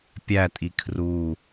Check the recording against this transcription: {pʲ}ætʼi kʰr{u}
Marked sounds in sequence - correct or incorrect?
correct, correct

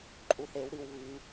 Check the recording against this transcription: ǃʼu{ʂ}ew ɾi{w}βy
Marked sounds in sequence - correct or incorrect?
incorrect: θ, correct

